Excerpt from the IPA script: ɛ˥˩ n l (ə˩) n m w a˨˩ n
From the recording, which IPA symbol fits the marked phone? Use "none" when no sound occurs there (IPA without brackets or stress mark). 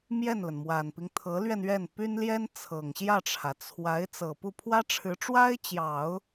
ə˩